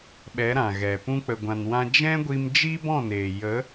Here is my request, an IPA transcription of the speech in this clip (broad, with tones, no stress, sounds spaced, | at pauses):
ɓ ɛ˨˦ ɾ ã˨ ɣ ɛ˨ p ũ˧ k͡p ə˨ ɡʷ ã˨ n w ã˧ d͡ʒ ɛ̃˦ ɡʷ i˧ m d͡ʒ i˦ b ɔ̃˦˨ n eː˨ j ə˨˦